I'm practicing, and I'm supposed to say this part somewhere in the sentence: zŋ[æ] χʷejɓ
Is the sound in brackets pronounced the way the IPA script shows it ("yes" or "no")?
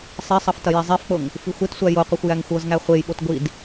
yes